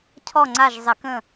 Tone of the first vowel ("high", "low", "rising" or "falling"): falling